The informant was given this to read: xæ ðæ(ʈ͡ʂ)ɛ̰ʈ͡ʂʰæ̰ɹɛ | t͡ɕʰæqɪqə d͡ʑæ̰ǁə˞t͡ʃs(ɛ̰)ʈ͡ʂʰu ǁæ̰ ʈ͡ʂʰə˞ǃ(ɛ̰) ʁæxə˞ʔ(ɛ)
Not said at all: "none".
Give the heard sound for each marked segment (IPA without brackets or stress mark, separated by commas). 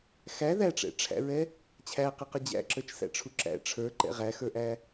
ʈ͡ʂ, æ̰, ɛ̰, æ